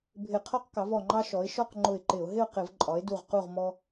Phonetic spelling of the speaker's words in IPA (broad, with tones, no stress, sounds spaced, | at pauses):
bʱ ɪ˧˩˧ qʰ ɔ˦ q k ɑ˩˥ v ɔ˧˩ ŋ͡ǃ ɑ˦ ʃ ɔ˩˥ ɪ̯ ʃ ɔ˥˨ q ŋ͡ǃ ʊ˧˩ ɪ̯ ǃ ɪ˧˩˧ ʊ̯ ɦ ɪ˥˨ ʊ̯ q ɪ˧˩˧ v ǃʼ ɒ˩˥ ɪ̯ d u˧˩ ʁ q u˥˨ ʁ m ɔ˦